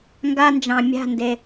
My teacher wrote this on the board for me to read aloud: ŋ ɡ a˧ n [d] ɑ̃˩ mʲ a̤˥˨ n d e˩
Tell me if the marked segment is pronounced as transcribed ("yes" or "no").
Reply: no